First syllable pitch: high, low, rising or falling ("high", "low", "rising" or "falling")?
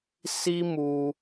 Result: high